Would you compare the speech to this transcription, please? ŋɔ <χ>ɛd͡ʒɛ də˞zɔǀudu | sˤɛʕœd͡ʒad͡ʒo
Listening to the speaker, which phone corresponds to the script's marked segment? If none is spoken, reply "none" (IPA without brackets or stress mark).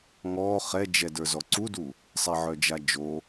χ